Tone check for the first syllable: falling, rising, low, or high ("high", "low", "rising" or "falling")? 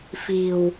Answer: low